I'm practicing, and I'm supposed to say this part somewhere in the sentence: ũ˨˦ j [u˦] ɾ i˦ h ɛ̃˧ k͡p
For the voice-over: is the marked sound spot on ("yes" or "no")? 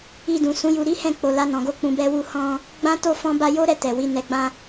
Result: no